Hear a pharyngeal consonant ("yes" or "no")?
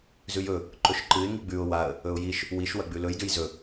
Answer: no